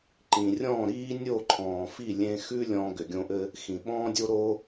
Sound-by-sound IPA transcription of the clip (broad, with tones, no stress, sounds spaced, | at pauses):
ǃ ĩ˨ rʲ ɔ̃ː˦˨ ɾ iː˦ nʲ o˦˨ ǃʰ ɔ̃ː˨ f i˦˨ lʲ ẽ˧ x ʉ˦ lʲ ɔ̃ː˧ ɡ ʏ˨ ɡʲ õ˧ ʔ ɘː˦ | x ĩ˨ ɓ ɔ̃ː˧ dʲ o˧ ɾ oː˦